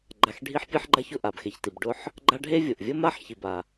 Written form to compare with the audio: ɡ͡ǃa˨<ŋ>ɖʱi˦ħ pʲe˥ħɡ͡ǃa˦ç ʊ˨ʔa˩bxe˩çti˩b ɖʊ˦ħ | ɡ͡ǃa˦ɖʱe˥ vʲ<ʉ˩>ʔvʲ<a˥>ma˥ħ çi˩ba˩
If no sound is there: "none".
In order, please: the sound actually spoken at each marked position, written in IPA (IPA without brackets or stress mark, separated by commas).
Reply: x, ʊ˩, ə˥